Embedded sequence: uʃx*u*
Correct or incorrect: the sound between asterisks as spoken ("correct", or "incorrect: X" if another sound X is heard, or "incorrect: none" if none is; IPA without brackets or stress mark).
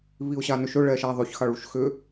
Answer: incorrect: ʏ